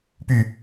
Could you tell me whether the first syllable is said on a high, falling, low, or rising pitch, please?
low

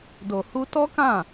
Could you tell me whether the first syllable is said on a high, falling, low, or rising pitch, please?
low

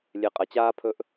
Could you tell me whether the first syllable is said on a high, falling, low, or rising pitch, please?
low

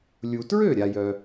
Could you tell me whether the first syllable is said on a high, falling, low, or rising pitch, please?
low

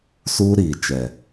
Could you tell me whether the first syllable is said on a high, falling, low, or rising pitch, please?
high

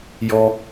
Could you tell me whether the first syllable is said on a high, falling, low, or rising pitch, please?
high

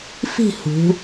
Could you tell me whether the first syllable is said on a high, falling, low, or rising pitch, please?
falling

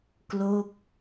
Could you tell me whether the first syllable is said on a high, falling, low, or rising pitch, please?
falling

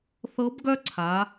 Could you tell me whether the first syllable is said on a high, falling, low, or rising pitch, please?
rising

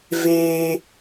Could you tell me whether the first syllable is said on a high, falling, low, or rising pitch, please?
high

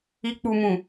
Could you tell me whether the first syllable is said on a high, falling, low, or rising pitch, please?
low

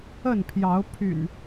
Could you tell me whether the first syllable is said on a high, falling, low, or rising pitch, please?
falling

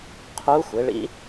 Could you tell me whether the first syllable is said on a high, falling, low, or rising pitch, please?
rising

